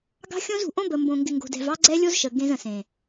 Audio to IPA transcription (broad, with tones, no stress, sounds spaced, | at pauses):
ɡ ɑ̤˦ xʲ õ˦ z ṳ˨ ʔ õ˦ b ə˨ m b õ˨ ŋ ɡ ɪ˨ ŋ ɡ o̤˨ d ɛ̤˦ v ɑ˦ ɡ͡ǀ ɛ˦ lʲ o˦ z ʃ ə˨ ɡ ẽ˦ z ə̃˨ s ẽ˨